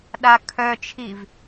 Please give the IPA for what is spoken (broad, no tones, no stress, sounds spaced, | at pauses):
ɗ a kʰ œ t͡ʃʰ i v